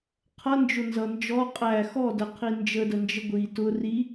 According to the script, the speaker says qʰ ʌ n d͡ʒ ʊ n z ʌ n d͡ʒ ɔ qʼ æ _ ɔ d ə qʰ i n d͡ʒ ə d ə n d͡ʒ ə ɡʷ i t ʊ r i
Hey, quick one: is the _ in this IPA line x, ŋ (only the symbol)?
x